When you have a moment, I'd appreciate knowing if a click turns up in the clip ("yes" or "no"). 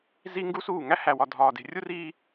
no